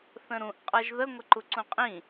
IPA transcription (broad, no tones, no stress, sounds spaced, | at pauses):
θ ə̃ ɾ ũ ʔ qʼ ɤ ʒ ð ə ŋʷ ə ǃ u ǀ ũ qʼ ĩ